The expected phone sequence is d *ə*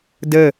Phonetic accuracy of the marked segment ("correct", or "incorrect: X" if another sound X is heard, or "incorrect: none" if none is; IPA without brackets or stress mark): correct